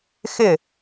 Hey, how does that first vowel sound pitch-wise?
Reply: falling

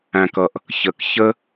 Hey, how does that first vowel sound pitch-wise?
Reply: low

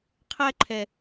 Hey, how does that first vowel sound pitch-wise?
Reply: high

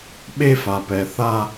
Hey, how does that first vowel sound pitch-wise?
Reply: high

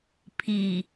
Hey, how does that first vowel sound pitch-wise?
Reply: low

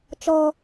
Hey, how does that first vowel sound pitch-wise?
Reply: high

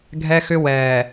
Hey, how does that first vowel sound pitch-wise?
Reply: high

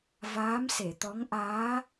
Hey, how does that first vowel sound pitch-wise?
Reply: rising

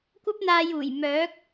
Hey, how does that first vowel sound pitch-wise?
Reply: high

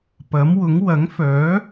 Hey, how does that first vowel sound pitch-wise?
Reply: rising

